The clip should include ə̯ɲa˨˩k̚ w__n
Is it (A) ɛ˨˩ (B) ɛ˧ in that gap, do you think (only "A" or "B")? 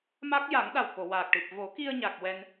B